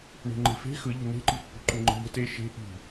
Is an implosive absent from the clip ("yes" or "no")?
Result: yes